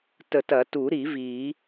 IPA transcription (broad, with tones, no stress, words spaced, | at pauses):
tə˨˩˦tɐ˨˩˦tu˨˩˦ ɾi˨˩˦ vi˨˩˦